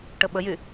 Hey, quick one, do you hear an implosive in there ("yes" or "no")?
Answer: yes